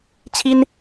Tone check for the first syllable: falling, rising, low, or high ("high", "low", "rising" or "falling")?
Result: high